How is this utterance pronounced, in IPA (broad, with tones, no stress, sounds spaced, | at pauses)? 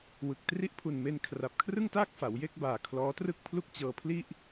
w ɯ˨˩ k̚ t r i˦˥ ʔ pʰ u˨˩ n m e˧ n kʰ r a˨˩ p̚ kʰ r ɯ˥˩ ŋ t aː˥˩ k̚ f a˩˦ w j e˥˩ k̚ b aː˨˩ kʰ l ɔː˦˥ t r ɯ˥˩ k̚ pʰ l u˥˩ k̚ t͡ɕ ɤː˧ pʰ l i˥˩ ʔ